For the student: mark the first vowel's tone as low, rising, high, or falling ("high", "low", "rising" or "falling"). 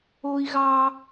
high